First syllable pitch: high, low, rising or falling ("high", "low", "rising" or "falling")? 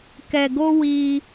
low